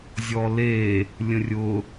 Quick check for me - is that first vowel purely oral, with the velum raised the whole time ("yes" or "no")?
yes